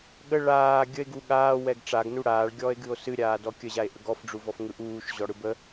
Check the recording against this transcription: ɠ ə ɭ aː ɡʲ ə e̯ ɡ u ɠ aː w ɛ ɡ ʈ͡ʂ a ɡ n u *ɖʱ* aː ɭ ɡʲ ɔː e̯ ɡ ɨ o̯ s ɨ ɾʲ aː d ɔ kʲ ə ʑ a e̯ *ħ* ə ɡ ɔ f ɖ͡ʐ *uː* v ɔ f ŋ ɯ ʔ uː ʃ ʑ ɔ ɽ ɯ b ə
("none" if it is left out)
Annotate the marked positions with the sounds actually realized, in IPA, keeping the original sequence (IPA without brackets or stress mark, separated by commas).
ɽ, ʔ, u